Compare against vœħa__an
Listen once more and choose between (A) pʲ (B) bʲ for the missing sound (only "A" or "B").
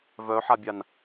B